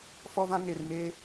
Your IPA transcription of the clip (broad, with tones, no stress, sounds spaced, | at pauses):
f ɔ˦ v ã˦ ŋ e˨ r m e˦